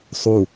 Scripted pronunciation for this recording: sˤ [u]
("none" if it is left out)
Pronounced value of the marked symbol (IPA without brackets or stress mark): u